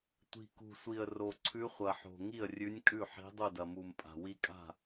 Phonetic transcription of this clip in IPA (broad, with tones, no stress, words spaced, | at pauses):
tʷi̤˨˩kṳ˨˩sʷi˨˩ə̯ ro˨˩ǀʰʉ˧˥χʷɐ˨˩ħo̤˨˩ ŋi˥˩ə̯rʲʉ˧˥nʲ kʼʉ˥˩ħi̤˧˥ dˤu˥˩dɐ˨˩mu˨˩mpʼa̤˨˩ wi˧˥kʼa̤˥˩